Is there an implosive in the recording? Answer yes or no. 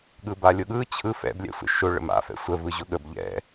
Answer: yes